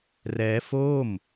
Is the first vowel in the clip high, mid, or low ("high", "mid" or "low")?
mid